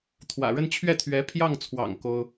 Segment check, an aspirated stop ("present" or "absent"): present